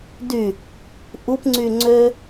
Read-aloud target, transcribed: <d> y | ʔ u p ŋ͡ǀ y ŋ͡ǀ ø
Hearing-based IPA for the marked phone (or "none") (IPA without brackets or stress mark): d